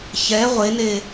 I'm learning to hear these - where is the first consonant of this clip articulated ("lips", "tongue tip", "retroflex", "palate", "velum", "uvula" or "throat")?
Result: palate